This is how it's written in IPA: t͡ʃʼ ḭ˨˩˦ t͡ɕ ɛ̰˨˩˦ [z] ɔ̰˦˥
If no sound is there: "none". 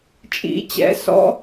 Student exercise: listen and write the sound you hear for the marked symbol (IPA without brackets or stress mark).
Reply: s